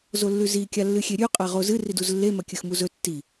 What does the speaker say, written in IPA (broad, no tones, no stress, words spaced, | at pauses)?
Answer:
zolːʉzi kʲalːɨxʲeɾʲʉ qʼaʁozɨ riduzlːe mɐkʲɨxmuzɵ tːi